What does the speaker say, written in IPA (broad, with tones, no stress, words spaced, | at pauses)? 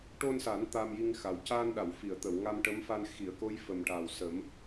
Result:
ʈo˧nsa˨˩˦n t̪a˧mji˧ŋxa˨˩w caː˧nɗa˨˩˨w fi˨˩˨ə̯t̪ə˨˩˨w ŋa˧mʈə˧˥mfa˧n xi˨˩˨ə̯ ko˧˥j fə˨˩mʈa˨˩wsəː˨˩˦m